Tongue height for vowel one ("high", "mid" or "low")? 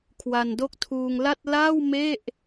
low